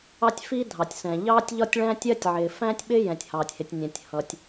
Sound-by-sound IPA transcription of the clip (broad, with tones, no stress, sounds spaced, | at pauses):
ɑ˥ tʲ f iː˥ dʱ ɑ˩ tʲ s ɛ̃˩ ʎ ɑː˥ tʲ ʎ ɒ˥ tʲ ɭ æ̃˥ tʲ ɜ˥ tʲ ʕ ɪː˩ f æ̃˥ tʲ ɓ ɪ˥ j ɛ̃˩ tʲ h ɑː˩ tʲ h ɪ˩ tʲ nʲ ɛ̃˩ tʲ h ʌ˩ tʲ